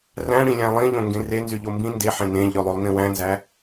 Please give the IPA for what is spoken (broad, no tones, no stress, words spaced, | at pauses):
ræ̃ɽĩlʲæ̃ lˠĩʎõ ŋɡẽrenzy ʎombĩ ndeħẽ nẽʎʉlˠolˠnĩw æ̃nzæ